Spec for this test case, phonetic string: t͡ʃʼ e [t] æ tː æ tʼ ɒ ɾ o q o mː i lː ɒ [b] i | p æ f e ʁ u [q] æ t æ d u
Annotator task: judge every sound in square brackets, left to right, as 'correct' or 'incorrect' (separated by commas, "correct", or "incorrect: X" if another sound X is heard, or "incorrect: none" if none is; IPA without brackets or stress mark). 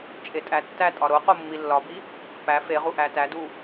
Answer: incorrect: tʼ, correct, incorrect: ʔ